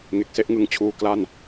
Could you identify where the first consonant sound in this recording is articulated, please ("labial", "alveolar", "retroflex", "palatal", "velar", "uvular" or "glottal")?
velar